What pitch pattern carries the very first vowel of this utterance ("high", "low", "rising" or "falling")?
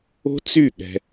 high